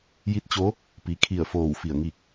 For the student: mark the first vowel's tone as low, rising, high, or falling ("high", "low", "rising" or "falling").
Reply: rising